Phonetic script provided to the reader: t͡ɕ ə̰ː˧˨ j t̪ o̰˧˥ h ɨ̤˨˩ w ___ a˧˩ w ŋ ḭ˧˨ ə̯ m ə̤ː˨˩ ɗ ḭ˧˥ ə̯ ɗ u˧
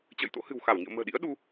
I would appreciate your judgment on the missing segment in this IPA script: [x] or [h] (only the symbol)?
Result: x